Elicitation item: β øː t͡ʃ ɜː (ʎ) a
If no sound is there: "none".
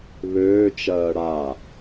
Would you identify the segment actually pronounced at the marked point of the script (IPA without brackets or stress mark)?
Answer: ɽ